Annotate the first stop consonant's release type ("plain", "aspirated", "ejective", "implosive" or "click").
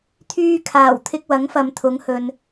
aspirated